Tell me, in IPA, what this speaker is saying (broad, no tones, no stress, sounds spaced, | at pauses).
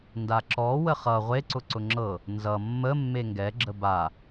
n d a ǁ ɔ w ə χ ʌ ʁʷ e ǀ ʊ ǀ ʊ ŋ͡ǁ ɤ | n z ʌ mː ə mː e ŋ ɡ ɛ ɡ͡ǁ ə b a